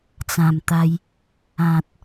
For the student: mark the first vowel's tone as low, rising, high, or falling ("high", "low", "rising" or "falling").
low